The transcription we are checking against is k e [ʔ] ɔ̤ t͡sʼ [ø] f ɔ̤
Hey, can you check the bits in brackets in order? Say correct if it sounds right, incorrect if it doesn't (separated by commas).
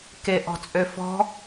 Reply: correct, correct